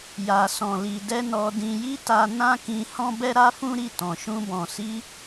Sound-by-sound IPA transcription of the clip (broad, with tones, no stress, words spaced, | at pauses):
ja˨sɔ̃˨ li˨dɛ˧ nɔ˨dĩ˨ji˧ ta˧ nã˦kĩ˧hɔ̃˦ bɛ˦ɾa˦fũ˦ɾi˦˨ tɔ̃˨ʃũ˧ bɔ̃˨si˧